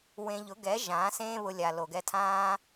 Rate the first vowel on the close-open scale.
mid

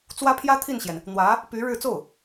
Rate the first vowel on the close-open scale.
open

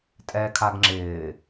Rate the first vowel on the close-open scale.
mid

